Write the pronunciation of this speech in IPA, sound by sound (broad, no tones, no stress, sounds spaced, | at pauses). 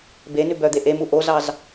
b e n ʉ b œ d̪ e ʔ e m u ʔ o z ɑ z